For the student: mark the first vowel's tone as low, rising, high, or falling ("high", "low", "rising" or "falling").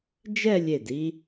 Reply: falling